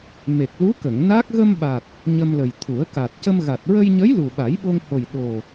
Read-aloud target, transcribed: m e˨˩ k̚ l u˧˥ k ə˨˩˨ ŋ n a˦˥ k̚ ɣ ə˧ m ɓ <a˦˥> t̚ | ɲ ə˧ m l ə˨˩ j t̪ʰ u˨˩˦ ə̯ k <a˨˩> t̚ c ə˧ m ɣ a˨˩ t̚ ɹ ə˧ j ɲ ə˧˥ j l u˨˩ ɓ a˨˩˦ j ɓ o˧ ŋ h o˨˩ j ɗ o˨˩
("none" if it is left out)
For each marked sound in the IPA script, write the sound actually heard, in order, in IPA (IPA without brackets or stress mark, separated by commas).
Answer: a˨˩, a˨˩